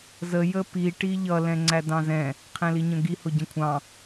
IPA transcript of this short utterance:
z ə j ə p i ʈ i ʎ ʌ l ɛ̃ ŋ͡ǀ æ d ɑ̃ z ɛ̃ | qʰ ɛ̃ l i ɲ ə̃ ɡ i h ʊ ɟ ə̃ kʷʰ ɑ̃

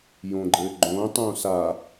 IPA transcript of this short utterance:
j õ ɡ͡ǃ ɘː ɡ͡ǃ õː tˤ õː s a

